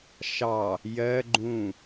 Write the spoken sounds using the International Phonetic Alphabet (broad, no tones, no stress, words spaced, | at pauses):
ʃɑ | jɜ ɡ͡ǃũ